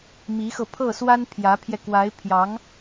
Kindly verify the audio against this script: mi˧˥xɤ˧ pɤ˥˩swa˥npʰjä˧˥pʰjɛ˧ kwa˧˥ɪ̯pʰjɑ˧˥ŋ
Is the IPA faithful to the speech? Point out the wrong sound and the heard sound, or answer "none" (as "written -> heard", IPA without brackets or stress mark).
p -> pʰ